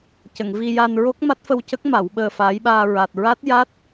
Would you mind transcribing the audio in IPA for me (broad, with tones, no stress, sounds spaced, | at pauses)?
c ə˨˩˨ ŋ v i˧ j a˧ n ɹ o˦˥ k̚ m a˦˥ t̚ f ə˧ w c ə˦˥ k̚ m a˨˩˦ w ɓ əː˧ f aː˧˥ j ɓ aː˧ ɹ a˨˩ t̚ ɹ a˦˥ t̚ j a˦˥ t̚